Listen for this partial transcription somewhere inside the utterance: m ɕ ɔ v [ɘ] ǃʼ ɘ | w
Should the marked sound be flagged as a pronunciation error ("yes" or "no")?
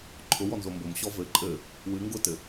no